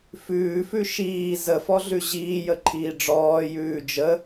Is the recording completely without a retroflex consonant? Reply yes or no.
no